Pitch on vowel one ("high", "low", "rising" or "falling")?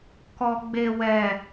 low